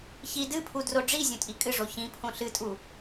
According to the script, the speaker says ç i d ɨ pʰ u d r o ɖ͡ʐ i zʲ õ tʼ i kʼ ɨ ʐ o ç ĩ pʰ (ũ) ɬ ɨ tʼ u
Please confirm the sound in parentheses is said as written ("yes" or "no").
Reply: no